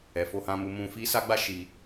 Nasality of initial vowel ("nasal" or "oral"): oral